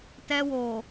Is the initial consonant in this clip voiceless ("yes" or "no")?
yes